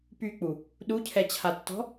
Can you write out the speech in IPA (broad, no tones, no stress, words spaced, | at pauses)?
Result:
pyk͡pu | ɗucʰɛt͡ɕʰatːɔ̤